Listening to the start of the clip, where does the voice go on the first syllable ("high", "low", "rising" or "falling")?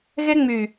high